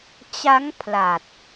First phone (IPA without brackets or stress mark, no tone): t͡ɕ